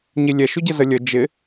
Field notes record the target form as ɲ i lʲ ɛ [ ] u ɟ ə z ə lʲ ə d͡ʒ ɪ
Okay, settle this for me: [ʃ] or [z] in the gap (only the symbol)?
ʃ